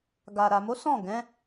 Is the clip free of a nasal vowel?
no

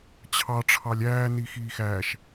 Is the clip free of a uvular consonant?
yes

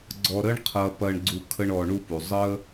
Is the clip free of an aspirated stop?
no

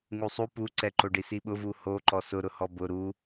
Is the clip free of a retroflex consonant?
no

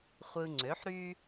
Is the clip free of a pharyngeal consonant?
no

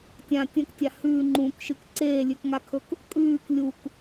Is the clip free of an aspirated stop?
no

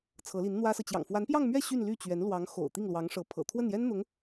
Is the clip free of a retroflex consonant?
no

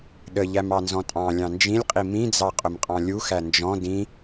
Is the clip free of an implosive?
no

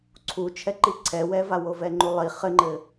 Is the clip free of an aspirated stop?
no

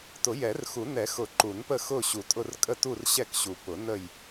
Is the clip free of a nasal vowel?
yes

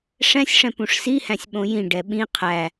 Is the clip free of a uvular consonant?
no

